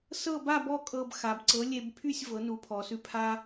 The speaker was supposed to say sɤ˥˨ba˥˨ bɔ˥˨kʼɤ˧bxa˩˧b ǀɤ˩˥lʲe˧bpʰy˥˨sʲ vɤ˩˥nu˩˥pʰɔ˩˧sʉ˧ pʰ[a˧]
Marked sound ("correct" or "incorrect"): correct